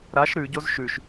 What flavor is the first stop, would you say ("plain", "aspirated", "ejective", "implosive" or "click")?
plain